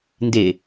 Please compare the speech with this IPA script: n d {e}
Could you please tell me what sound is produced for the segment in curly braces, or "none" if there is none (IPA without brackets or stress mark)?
e